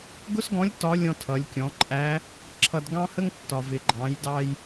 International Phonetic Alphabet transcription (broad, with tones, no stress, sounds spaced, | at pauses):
ɡ ʊ˥ s ɡ ɔ̃˧˥ lʲ t ɒ˧˥ lʲ ɔ̃˧ tʰ ʌ˩˧ lʲ kʲ ɔ̃˩˧ ǃʼ æ˧˥ | ǁʰ ʌ˧ d ɡ ɑ̃˥ h ə˥ ŋ tː ɒ˩ v ɪ˩ ɡ͡ǃ ɑ̃˩˧ j d ɑ˧ j